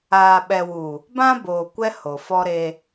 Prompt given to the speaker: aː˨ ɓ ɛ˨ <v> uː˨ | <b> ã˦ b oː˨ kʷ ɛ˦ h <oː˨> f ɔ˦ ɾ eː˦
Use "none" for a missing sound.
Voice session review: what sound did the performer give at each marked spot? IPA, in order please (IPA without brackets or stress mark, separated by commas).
w, b, o˨